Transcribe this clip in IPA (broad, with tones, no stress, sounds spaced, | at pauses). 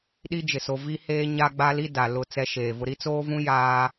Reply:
ɗ i˦ d͡ʒ ɪ˨ s o˨ v i˦ h eː˦ ɲ a˦ ɡ͡b a˦ l i˦ d a˨ l ʊ˦˨ t͡s ɛ˦ ʃ eː˨ v ʊ˦ ɾ i˦ t͡s oː˦ v ũ˦ j aː˦